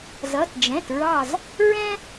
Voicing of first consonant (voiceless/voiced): voiced